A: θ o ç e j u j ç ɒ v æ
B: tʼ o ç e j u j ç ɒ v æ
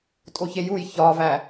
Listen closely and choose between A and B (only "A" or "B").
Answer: B